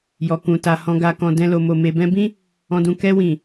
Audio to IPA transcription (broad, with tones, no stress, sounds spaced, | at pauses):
j ɔ˨ k ũ˨ t a˨ h ɔ̃˨ ɡ a˨ k ɔ̃˨ d ɛ̃˧ l o˨ m o˨ m e˨ b ɛ̃˧ b ĩ˦ | ɔ̃˧ d ũ˧ k ɛ˧ w ĩ˨